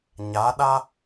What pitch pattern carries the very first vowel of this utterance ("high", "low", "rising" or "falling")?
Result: rising